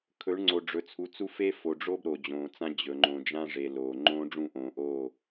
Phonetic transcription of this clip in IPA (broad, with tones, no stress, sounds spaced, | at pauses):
kʰ ɵ˨˦ ɳ ŋ͡ǀ o˨ ɖ͡ʐ ɵ˨ t͡sʰ u˨˦ t͡s u˦ f e˦ f o˨ ɖ͡ʐ o˦ b ɾ o˨ d͡ʑ õː˨ t͡s ã˦ d͡ʑ ɵ˨ ŋ͡ǃ õ˨ d͡ʒ ã˦ ʐ e˨ l oː˨ ŋ͡ǃ õː˦ ɖ͡ʐ ũ˦˨ ʔ õː˨ ʔ oː˦˨